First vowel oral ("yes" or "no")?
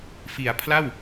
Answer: yes